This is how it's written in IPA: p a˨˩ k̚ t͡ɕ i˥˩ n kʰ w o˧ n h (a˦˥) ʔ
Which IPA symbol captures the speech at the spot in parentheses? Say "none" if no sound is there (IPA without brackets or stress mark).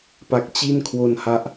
a˦˥